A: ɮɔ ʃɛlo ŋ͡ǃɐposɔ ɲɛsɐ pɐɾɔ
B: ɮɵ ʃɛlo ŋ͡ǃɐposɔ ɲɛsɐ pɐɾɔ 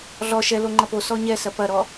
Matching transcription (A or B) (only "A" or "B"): A